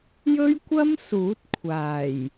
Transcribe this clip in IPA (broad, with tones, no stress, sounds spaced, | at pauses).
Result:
j ɵ˥ ɥ kʷ ɐ˥ m s uː˨˥ t̚ kʷʰ aː˨˩ j